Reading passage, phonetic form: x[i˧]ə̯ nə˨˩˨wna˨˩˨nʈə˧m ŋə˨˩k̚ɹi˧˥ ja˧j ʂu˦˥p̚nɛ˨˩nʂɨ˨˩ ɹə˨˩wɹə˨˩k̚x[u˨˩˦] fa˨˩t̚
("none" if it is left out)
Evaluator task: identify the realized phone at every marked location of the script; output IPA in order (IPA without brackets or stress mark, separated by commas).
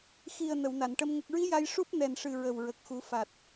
i˨˩, u˨˩˦